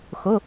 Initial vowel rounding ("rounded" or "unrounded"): rounded